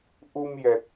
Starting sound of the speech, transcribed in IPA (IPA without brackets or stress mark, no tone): ʔ